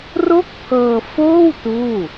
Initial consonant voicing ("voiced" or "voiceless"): voiced